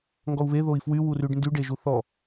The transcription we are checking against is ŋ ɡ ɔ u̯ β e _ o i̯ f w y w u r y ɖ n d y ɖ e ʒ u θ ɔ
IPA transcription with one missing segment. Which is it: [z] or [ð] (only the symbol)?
ð